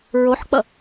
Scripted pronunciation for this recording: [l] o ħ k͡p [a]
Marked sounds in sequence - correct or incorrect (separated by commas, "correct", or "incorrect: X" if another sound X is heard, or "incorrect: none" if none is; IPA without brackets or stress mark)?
incorrect: ɹ, incorrect: ʌ